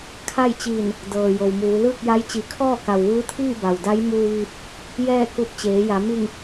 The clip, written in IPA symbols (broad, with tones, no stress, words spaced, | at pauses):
kʰa˥˨jt͡ɕiː˧˩n | dɤː˩ jo˩wmuː˩˧ lɯː˥˨k̚ja˧˥j t͡ɕi˩˧kʰɔː˥˨ka˩w ʋɯː˧˥t̪ʰiː˥˨ ba˩wda˧˥j muː˧ʋiː˧p̚ | jɛː˥˨ku˧p̚ t͡ɕeː˩˧ja˩˧ mi˧˩ŋ